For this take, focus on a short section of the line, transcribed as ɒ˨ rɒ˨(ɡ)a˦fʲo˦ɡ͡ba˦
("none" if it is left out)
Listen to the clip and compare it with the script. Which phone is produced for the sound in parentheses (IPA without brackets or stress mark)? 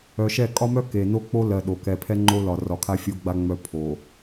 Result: kʰ